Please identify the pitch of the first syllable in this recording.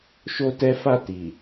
high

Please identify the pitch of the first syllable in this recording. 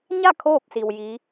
falling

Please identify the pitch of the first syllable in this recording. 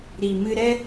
low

